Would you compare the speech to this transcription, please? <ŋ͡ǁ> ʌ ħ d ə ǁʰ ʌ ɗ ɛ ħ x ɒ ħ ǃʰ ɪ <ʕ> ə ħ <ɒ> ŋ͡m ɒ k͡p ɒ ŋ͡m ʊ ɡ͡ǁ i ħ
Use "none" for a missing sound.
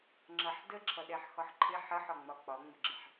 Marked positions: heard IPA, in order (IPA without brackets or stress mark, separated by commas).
ŋ͡ǁ, ħ, ɒ